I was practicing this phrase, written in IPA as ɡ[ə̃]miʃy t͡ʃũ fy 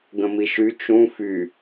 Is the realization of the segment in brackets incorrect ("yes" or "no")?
no